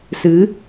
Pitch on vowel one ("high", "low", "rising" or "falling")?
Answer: rising